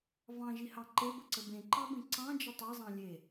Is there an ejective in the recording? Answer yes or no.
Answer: no